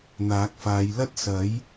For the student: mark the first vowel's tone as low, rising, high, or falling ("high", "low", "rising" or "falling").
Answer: rising